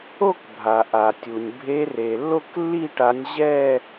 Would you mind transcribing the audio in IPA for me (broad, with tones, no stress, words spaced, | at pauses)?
o˥˧kbʱa˩ʔa˩tʲu˩nʲ bʱe˨˦re˩ lːo˥˧klːi˥˧ ʈa˨˦nʲʑɛ˥˧